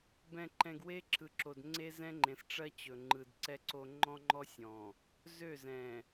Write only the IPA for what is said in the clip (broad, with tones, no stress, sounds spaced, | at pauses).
b ɛ̃˨ ǃ ɛ̃˨ ɡ w e˦ ǁ ɯ˨ ǁ o˨ d ŋ͡ǀ e˦ z ɛ̃˦ ŋ͡ǃ ẽ˨ s ʈ͡ʂ ɜ˦ t͡ɕ ɵ˨ ŋ͡ǃ ɯ˨ d ǀ ɛ˦ ǀ o˦ ŋ͡ǃ ɔ̃˦ ŋ͡ǃ ɔ˦ sʲ ɔ̃˨ | z ø˦˨ z ɛ̃˨